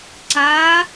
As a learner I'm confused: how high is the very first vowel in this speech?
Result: low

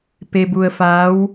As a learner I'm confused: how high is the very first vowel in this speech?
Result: mid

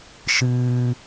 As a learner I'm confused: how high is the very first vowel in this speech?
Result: high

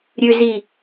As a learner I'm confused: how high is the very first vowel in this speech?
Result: high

